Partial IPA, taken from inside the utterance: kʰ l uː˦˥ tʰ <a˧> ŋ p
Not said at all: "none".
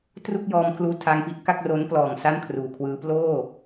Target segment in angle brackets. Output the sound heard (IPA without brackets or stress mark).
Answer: a˧